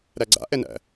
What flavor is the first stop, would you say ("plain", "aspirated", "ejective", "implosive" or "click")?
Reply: click